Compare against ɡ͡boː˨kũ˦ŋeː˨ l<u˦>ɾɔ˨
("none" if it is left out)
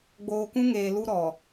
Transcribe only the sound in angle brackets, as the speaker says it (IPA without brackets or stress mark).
u˦